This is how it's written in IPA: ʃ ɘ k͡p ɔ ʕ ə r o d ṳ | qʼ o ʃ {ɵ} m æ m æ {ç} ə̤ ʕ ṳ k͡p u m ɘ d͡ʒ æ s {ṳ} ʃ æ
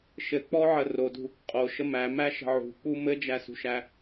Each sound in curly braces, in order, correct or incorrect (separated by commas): incorrect, incorrect, correct